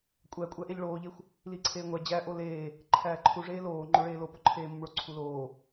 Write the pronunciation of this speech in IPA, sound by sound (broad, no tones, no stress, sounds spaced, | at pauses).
kʷʼ æ kʷʼ æ ʔ e ʎ ɭ oː ʎ e xʷ | l i ǀʰ eː ŋʷ æ d͡ʑ æ ʔ o l eː | ǃʰ æː ǃʰ u ʐ eː l oː ŋ͡ǃ o ɭ eː l o p o ǃʰ eː m o m ɭ o ǀʰ u l oː